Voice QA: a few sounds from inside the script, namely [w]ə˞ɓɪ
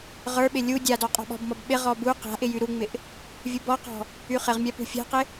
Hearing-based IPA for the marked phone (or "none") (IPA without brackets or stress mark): ʁ